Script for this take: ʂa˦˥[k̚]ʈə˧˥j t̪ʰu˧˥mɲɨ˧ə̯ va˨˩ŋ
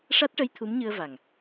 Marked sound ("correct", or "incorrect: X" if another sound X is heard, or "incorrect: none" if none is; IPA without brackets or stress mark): incorrect: t̚